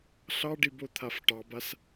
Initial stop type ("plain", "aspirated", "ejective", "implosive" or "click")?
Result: plain